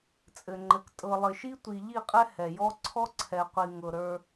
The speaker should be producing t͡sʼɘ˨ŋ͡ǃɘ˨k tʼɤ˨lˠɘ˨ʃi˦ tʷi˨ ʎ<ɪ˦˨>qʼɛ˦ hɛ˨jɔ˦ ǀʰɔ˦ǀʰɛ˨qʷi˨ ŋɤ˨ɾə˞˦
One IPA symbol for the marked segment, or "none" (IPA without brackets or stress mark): i˦˨